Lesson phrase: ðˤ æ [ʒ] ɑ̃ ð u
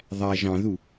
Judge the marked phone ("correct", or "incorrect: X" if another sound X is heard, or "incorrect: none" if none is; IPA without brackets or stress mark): correct